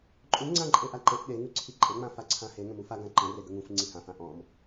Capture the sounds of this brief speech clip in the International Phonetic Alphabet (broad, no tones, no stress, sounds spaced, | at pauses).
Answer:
ǃʼ ũ ŋ͡ǀ ã ǃʼ e ʔ a ǃ e ʔ ɗ e ŋ ʉ ǀʰ i ǃʼ e ŋ͡m ã f a ǀʰ ã h e ŋ ə̃ m u f a ɡ ã ǃ ə̃ r e ɡ ə ŋ ũ f ŋ͡ǀ ĩ h ã f ã ʔ ɔ̃ m